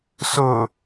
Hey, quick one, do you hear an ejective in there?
no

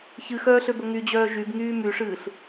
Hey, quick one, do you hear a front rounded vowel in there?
yes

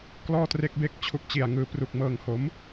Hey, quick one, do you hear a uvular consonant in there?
no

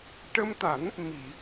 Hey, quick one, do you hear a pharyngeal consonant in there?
no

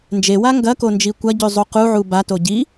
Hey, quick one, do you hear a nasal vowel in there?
no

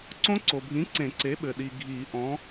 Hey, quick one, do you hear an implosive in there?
yes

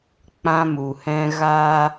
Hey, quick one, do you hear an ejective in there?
no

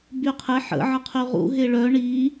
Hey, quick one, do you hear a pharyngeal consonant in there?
yes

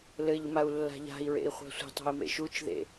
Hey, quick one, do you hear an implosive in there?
no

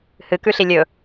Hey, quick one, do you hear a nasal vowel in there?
no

